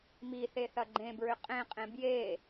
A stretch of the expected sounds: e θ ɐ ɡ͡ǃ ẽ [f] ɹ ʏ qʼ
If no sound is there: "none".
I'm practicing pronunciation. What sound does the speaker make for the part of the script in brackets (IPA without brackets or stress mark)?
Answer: b